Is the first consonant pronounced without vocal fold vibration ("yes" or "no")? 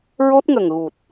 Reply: no